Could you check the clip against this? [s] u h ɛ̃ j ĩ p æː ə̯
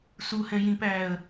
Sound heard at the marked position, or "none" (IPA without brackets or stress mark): s